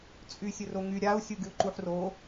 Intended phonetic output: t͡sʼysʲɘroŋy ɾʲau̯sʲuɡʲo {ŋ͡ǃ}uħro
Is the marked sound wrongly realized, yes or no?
yes